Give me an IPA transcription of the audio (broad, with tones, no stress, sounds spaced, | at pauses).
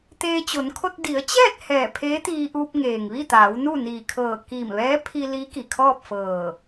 t̪ eː˧ t͡ɕ o˩˧ n kʰ o˧ t̚ d i˩˧ ə̯ t͡ɕ ɛː˥˨ t̚ h ɛː˧˩ pʰ eː˧˥ t̪ iː˧ ʔ uː˧ p̚ ŋ eː˩ ŋ ʋ i˥˨ t̪ aː˩˧ w n u˥˨ n iː˧˩ kʰ ɤː˧˩ k i˧˩ m ʋ ɛː˧˥ pʰ i˧ l i˧˥ k i˩ kʰ ɔː˥˨ p̚ f ɤː˧˩